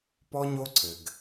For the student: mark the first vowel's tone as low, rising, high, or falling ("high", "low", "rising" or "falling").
high